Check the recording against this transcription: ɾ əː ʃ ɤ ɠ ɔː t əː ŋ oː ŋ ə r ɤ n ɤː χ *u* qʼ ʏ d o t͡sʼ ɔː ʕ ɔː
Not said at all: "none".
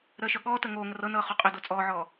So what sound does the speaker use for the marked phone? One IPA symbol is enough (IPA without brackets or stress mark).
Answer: o